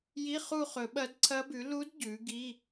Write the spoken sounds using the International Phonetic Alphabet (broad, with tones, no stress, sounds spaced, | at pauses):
j i˧˥˧ χ u˦˨ χ ɵ˨˩˦ ɓ ɐ˧˥ d ǀʰ ɐ˧˥ b ʉ˩˥ l u˧˥ d ɟ ʉ˩˥ ɡ i˧˥˧